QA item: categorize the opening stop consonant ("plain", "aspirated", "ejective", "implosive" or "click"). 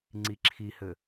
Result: click